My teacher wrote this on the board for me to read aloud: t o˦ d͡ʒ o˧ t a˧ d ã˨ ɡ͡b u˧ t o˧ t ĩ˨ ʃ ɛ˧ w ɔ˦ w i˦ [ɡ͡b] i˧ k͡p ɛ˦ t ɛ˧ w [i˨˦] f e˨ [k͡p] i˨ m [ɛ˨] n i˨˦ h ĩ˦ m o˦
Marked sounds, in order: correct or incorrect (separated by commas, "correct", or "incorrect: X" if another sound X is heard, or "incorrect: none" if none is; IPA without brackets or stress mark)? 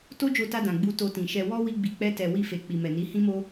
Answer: correct, incorrect: i˧, correct, correct